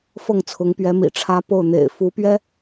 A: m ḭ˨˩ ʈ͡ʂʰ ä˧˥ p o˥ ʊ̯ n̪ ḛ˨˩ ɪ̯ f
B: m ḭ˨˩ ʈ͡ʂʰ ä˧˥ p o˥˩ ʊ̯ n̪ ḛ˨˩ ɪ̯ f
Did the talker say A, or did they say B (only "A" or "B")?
B